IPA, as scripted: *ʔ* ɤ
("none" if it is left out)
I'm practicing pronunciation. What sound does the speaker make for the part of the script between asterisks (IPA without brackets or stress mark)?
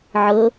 ʕ